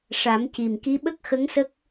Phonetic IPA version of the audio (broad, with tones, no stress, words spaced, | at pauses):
ʂa˨˩˦mci˨˩m ki˧˥ɓə˦˥k̚xə˧˥ŋsə˦˥k̚